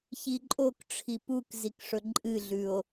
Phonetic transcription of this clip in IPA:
ç i ǃʼ o k ʈ͡ʂʰ i p u k z i k ʂ ɵ ǃʼ ɨ ɮ ʉ o̯

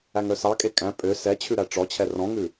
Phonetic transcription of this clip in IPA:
æ ŋ œ s ɑ kʼ e kʼ æ̃ pʼ ø s ɛ t͡ɕʰ ʉ ɾ æ ʈ͡ʂ ɔ t͡ɕʰ ɛ r ɔ̃ ŋ ʉ

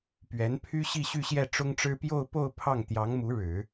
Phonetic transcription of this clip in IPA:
p ɥ ɛ˧˥ n pʰ y˥ ɕ i˥˧ ɕ y˥˧ ɕ j ɛ˥˩ ʈ͡ʂ ʊ˥ ŋ ʈ͡ʂ ɻ̩˥ p j o˥˧ ʊ̯ p o˥˧ ʊ̯ pʰ ɑ˥˩ ŋ t̪ j ɑ˧˥ ŋ m u˧˥ ɻ ɻ̩˨˩˦

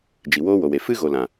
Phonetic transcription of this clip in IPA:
d͡ʒ i˨ w oː˦ w o˨ w e˨ f ɨ˦ ɣ o˨ l ã˨

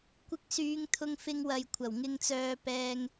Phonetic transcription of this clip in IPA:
kʷ ɪ˧ k̚ s yː˨˧ ŋ t̪ʰ ʊ˧ ŋ f ɪ˧ ŋ w ɐ˨ j kʷʰ ɐ˨˩ w ŋ ɪ˧ ŋ t͡s œː˧ p ɛː˧ ŋ

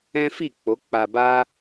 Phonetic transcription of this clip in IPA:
ɛ̃˦ f i˦˨ k͡p o˨˦ k͡p a˧ b a˦

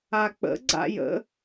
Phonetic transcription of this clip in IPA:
a k͡p ə̰ ɡ͡ǀ a̰ j ə̰

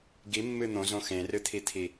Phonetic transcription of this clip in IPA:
ɡ i mː ɨ n̪ õ z õ x ẽ r ɨ t̪ʰ i t̪ʰ i

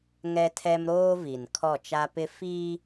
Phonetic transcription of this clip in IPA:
ŋ ɛ˦ tʰ ɛ˦ m ɾ oː˦ v i˨ n kʰ ɔ˦˨ t͡ʃ a˦ p ɪ˦ f i˦

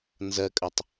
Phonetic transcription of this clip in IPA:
n z ɜ kʼ ə tˤ

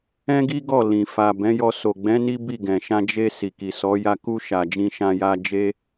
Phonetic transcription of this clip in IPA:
ɛ̃˦ ɡ i˦ ɡ ɔ˦˨ l ĩ˨ f a˨ b ɛ̃˨˦ j ɔ˧ s o˨ ɡ͡b ɛ̃˨˦ n i˦ b i˦˨ ɡ ɛ̃˨ ʃ ã˧ d͡ʒ e˧ s i˨ k i˨ s ɔ˨˦ j a˧ k u˧ ʃ a˨ d͡ʒ ĩ˧ ʃ ã˧ j a˧ d͡ʒ e˦

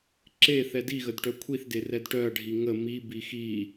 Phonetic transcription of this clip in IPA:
ǁ e θ ɛ d i ɣ ə d ʈ œ kʷʰ i θ d e r ɛ d ʈ œ ɐ̯ ɖʱ i ŋ ə m i b i x i

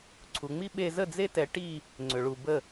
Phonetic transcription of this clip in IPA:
ǀʰ u˨ ŋ͡m i˦ ɓ e˧ z ə˦˨ d͡z e˦ t ɛ˧ ʈ i˦˨ | ŋ͡ǀ ʏ˨ ɭ u˨ b ə˦˨

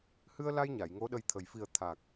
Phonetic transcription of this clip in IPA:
h ɨ˧ ə̯ l a˧ j ɲ a˨˩˨ j ŋ o˧˥ ɗ ə˧ j t̪ʰ ə˨˩ j f i˨˩ ə̯ t̪ʰ a˨˩ k̚

